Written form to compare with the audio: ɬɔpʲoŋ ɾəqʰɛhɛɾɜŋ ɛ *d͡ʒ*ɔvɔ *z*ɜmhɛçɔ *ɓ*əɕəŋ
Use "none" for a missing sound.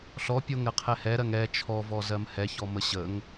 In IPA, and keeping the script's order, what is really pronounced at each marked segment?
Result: t͡ʃʰ, z, m

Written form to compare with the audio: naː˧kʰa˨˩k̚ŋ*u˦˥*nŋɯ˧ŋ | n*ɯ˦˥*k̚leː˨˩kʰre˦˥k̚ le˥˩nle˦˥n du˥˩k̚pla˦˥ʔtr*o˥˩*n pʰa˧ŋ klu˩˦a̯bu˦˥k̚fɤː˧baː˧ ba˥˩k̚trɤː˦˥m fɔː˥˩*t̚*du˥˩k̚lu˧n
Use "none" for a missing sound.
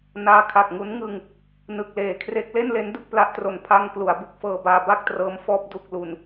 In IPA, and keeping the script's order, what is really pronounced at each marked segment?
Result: u˦˥, ɯ˨˩, o˨˩, p̚

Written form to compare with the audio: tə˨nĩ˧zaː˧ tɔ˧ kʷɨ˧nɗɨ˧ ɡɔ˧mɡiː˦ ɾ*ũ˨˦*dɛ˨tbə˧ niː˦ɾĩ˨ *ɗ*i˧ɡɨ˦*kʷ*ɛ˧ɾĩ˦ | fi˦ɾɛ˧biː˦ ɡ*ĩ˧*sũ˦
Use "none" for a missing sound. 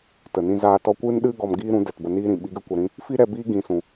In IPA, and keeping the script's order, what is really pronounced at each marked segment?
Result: ũ˨˦, ɓ, kʷ, ĩ˦

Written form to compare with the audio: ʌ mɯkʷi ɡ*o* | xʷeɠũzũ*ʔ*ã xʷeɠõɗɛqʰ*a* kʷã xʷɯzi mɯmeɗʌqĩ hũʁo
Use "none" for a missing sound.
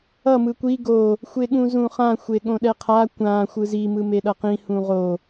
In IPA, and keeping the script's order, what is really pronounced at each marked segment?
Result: o, χ, a

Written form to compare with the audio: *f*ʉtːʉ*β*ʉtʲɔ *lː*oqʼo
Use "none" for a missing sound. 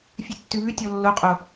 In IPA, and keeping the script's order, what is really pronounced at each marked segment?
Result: fʲ, β, lː

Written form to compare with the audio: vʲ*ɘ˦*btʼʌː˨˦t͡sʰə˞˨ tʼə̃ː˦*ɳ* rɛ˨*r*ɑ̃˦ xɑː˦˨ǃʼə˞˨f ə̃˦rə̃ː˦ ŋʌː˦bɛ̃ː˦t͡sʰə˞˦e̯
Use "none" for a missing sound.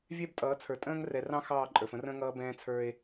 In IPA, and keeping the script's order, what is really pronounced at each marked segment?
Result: ɛ˦, ŋ, r

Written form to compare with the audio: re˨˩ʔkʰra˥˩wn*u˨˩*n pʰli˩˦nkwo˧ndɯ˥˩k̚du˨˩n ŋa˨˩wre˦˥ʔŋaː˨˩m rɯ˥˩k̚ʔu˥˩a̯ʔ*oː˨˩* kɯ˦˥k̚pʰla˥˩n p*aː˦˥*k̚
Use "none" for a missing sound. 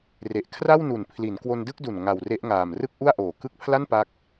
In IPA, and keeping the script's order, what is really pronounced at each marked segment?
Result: u˨˩, oː˨˩, a˦˥

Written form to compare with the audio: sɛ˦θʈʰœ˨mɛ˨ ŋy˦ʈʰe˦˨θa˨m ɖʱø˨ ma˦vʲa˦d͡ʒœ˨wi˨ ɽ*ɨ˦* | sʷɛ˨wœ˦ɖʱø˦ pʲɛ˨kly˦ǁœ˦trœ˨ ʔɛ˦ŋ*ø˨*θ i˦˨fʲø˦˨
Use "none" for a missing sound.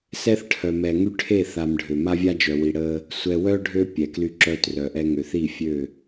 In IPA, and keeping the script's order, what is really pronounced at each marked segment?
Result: ə˦, ø˨

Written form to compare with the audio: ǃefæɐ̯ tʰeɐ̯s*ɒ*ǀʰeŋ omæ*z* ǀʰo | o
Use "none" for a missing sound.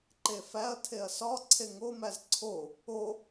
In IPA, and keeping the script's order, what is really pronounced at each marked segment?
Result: ɒ, z

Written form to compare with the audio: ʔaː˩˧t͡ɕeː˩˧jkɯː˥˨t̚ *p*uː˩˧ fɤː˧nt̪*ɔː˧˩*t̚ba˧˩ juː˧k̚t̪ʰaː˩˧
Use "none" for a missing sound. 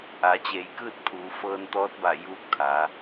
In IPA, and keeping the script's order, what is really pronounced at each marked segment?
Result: pʰ, ɔː˧˥

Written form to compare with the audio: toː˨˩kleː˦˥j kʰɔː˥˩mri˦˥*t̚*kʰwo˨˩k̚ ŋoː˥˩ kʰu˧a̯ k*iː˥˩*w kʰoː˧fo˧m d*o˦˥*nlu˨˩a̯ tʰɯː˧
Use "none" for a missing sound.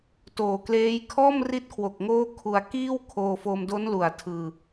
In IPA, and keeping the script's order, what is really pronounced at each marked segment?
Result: t̚, iː˥˩, o˦˥

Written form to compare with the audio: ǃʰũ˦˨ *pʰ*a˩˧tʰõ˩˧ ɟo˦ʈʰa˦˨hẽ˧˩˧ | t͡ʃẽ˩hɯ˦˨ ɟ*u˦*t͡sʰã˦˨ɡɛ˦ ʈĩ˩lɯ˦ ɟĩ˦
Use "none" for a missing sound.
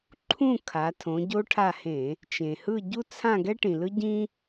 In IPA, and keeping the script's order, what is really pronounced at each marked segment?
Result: kʰ, u˦

